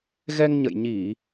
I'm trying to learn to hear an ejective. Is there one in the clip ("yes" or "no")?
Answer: no